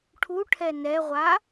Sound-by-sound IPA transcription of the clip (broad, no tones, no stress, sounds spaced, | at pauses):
ʈʰ u ʈʰ ɛ n ɛ ʁʷ a